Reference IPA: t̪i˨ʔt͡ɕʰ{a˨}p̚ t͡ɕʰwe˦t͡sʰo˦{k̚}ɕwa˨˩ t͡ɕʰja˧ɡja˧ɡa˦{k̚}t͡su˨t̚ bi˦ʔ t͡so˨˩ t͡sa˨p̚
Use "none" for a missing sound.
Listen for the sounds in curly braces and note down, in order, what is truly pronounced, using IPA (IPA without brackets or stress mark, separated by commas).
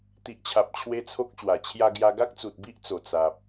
a˨, k̚, k̚